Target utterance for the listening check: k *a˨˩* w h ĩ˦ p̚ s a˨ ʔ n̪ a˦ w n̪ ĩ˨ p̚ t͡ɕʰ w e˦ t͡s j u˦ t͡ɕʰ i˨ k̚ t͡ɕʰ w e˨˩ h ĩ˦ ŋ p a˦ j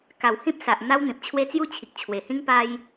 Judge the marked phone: correct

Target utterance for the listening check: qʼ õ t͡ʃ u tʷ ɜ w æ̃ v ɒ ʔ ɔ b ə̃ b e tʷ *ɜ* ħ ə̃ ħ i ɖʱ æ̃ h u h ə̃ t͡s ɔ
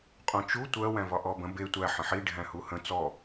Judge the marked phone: incorrect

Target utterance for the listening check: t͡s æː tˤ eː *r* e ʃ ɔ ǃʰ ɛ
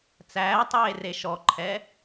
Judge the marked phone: correct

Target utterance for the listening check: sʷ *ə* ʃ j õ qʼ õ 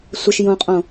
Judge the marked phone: correct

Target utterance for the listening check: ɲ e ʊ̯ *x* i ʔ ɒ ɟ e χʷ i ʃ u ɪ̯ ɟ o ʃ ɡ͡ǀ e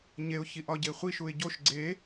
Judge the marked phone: incorrect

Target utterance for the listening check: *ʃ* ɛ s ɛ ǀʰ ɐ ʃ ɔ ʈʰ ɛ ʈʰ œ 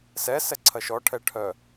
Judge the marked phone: incorrect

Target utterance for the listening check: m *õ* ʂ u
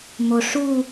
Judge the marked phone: incorrect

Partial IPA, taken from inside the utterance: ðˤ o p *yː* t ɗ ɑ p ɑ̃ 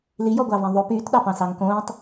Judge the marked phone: correct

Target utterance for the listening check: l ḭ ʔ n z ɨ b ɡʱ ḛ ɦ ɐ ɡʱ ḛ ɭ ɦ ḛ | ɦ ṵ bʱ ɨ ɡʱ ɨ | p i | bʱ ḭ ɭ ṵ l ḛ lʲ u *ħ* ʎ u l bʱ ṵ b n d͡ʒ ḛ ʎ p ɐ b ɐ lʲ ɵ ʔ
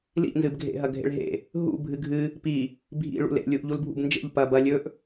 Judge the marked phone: incorrect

